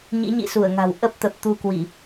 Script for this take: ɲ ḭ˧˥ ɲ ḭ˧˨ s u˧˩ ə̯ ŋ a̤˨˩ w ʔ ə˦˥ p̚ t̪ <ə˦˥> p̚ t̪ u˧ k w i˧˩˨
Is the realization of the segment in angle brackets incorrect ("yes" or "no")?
yes